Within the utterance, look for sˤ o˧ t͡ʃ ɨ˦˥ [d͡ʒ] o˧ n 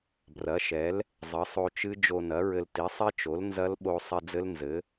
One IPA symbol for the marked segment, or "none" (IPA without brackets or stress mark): d͡ʒ